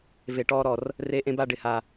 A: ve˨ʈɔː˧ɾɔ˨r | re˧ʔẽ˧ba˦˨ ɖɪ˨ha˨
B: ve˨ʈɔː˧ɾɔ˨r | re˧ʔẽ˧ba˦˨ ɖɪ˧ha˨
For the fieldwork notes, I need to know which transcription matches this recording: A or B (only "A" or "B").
A